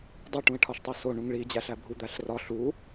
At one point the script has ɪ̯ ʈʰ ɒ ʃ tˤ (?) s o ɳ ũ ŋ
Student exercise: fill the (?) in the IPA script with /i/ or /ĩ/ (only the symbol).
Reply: i